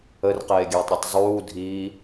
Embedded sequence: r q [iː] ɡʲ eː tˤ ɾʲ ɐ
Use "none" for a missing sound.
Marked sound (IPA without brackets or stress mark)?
eː